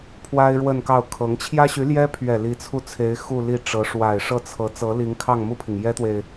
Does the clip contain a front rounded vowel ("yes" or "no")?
yes